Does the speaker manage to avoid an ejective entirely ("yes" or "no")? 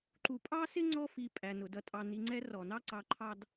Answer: no